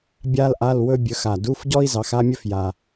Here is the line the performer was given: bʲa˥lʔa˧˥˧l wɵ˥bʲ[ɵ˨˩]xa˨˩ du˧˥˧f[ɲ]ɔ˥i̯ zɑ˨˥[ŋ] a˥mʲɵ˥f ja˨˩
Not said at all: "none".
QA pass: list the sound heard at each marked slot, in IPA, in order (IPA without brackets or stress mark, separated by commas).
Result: ɵ˨˥, ɟ, x